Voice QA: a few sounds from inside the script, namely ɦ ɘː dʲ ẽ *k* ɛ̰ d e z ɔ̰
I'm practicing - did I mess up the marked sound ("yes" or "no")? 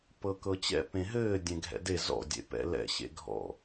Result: yes